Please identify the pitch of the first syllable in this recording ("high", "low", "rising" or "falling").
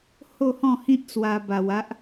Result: falling